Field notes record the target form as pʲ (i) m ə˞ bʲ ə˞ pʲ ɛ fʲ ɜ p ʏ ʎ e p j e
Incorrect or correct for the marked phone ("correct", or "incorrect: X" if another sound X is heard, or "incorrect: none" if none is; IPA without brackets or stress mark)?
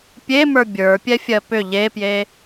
incorrect: e